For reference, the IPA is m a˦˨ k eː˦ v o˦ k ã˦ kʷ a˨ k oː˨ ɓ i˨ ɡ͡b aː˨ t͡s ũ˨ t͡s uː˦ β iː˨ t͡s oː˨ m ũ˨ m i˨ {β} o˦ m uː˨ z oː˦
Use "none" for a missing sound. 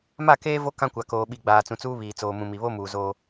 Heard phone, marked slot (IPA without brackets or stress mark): β